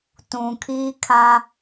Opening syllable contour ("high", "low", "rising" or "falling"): low